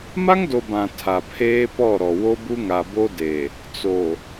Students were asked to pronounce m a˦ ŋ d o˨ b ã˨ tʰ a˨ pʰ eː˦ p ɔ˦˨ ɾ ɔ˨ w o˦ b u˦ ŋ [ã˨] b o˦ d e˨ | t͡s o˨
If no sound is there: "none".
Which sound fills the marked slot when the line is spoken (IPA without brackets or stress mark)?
a˨